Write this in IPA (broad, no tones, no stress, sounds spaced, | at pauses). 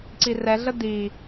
ǀ i r ɛ ɮ ə d i